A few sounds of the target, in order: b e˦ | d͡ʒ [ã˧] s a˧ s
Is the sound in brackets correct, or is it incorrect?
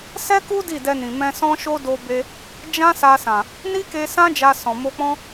incorrect